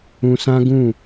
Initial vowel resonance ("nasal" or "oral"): nasal